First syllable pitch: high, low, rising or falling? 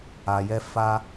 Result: low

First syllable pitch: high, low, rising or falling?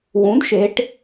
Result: rising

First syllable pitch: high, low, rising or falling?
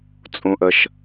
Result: low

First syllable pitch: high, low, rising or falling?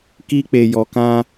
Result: high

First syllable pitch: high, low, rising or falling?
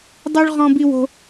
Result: high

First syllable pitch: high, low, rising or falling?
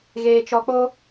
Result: low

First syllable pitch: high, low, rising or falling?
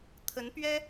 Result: rising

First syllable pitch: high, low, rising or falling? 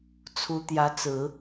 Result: rising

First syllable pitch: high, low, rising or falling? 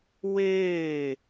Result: falling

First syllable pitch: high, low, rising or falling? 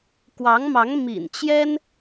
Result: rising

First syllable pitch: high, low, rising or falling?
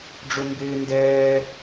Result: high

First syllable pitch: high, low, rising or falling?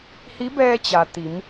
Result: rising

